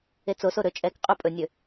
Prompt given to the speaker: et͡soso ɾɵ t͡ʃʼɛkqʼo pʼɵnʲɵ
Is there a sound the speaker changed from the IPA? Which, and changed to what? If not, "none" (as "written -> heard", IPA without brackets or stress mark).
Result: none